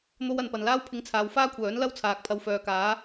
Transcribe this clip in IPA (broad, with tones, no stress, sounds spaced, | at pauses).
n̪ o˥ w ɐ˨˧ n p ɐ˨ n l aː˥ w pʰ ɪ˧ ŋ t͡sʰ aː˨˧ w f aː˥ kʷʰ œː˨˥ n l ɐ˥ w t͡sʰ aː˨ k̚ pʰ ɐ˧ w f œː˨ k aː˨˥